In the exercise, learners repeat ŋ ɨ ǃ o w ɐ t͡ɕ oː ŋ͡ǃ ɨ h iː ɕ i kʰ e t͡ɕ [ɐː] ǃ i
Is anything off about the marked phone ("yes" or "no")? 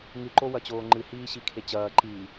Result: no